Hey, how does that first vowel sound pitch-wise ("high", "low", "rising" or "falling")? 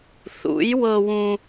rising